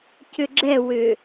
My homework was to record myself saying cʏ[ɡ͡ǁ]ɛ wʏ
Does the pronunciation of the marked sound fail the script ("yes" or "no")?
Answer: no